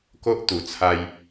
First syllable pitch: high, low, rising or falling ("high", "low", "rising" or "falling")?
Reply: high